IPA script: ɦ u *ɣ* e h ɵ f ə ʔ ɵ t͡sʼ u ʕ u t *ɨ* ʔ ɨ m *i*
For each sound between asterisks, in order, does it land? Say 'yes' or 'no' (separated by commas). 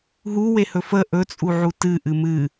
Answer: no, yes, no